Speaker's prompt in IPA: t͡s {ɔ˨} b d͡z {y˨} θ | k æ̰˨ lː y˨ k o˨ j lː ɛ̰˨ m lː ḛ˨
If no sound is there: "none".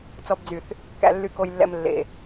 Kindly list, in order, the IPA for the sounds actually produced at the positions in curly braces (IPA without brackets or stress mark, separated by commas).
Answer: ɔ˨, y˨